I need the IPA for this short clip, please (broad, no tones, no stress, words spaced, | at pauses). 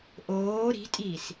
ʔoː ɾi̤tʼiːs